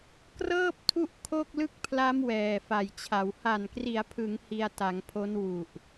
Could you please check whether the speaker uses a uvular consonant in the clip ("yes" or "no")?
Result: no